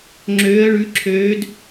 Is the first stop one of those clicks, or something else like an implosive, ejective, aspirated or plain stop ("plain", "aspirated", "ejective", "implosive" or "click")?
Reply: click